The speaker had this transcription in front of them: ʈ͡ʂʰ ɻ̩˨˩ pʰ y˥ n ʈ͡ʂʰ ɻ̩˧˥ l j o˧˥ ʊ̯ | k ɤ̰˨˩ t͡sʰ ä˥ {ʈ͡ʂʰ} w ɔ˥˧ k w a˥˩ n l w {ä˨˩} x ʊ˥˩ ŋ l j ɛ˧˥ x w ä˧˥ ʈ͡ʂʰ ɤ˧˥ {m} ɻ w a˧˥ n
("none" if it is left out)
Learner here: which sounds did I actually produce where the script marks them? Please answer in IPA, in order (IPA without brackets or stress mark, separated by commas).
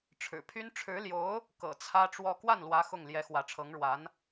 ʈ͡ʂ, ä˧˥, ŋ